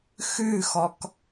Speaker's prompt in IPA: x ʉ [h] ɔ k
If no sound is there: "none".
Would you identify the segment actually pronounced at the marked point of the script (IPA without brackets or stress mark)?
x